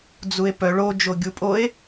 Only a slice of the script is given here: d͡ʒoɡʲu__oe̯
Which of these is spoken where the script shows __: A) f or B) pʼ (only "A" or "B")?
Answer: B